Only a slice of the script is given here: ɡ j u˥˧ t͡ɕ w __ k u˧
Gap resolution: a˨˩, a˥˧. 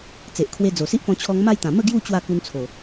a˥˧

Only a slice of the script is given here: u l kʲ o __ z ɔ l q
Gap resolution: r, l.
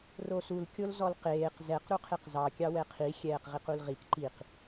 l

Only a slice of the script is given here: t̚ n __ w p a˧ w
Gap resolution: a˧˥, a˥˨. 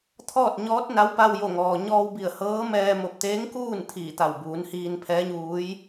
a˧˥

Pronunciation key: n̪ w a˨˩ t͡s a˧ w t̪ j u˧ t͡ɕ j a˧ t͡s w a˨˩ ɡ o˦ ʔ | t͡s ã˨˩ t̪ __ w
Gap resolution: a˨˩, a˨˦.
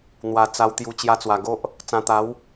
a˨˦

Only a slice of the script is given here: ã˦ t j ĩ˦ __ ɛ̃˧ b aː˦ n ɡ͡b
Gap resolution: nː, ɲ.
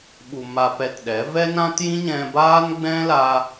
ɲ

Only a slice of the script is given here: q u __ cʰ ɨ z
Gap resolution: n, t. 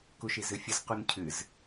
n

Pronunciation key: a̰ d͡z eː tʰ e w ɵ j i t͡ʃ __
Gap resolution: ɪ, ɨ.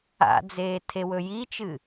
ɨ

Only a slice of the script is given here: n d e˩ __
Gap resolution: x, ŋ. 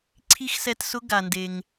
ŋ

